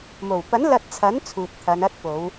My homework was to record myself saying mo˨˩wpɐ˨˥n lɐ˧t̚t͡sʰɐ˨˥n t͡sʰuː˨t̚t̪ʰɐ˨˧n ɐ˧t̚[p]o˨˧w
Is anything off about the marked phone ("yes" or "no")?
no